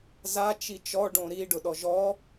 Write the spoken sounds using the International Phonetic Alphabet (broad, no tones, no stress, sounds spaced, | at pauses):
z a t͡ʃ i t͡ʃ ɔ ɖ õ ɾ i ɖ ʊ ɗ ɔ ʒ ɔ